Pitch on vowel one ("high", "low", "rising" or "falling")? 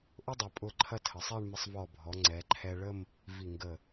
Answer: high